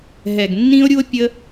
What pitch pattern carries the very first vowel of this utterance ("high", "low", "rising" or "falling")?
low